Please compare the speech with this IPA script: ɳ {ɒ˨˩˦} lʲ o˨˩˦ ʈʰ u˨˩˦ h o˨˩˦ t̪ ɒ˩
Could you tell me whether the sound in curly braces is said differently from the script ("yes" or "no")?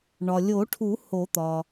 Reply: yes